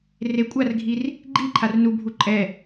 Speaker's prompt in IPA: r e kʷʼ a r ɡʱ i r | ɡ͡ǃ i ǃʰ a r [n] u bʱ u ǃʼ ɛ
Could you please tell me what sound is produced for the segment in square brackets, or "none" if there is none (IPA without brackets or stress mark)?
n